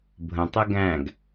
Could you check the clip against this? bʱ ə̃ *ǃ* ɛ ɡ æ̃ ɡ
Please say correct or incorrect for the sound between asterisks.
incorrect: tˤ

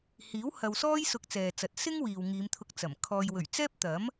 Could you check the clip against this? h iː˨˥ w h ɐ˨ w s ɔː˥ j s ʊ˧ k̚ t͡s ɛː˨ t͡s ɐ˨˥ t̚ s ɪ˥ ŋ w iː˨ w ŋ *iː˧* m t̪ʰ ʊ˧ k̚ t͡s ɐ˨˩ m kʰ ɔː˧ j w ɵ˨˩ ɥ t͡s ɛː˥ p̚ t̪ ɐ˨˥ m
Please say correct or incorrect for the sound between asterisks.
incorrect: iː˨˧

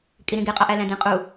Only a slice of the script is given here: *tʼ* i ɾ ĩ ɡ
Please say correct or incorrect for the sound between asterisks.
incorrect: kʼ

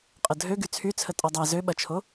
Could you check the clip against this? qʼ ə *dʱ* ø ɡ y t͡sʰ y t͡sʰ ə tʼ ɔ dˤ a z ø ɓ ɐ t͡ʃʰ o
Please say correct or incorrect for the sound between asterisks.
correct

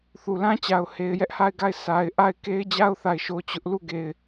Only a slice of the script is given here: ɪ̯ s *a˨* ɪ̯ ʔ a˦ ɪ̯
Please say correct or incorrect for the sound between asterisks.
correct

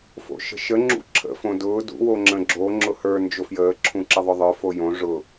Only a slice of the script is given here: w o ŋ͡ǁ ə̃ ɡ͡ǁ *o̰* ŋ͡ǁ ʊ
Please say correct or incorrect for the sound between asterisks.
incorrect: o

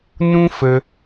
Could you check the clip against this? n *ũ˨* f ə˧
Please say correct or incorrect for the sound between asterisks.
incorrect: ũ˦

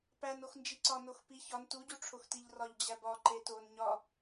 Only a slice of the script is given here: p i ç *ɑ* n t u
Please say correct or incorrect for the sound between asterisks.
incorrect: ɒ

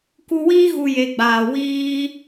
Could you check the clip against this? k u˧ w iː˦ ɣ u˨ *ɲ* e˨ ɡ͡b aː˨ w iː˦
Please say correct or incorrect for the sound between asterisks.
incorrect: j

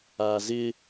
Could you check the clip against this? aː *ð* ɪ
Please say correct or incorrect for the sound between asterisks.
incorrect: z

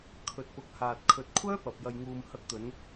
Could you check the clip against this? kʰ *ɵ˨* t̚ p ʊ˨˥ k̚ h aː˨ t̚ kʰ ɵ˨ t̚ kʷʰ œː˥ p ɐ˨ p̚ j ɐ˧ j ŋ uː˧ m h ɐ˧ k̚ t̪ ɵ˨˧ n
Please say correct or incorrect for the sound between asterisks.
correct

